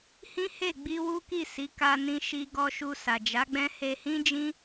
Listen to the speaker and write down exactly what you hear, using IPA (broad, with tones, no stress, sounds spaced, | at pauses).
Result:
h ĩ˦ h e˦˨ ɡ͡b i˧ w u˦ k i˦˨ s i˨˦ k a˧ n ĩ˧ ʃ i˧ ɡ ɔ˧ ʃ u˧ s a˨ d͡ʒ a˨˦ ɡ͡b ɛ̃˦ h e˧ h ĩ˦ d͡ʒ ĩ˦